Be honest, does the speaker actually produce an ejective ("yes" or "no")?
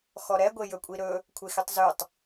yes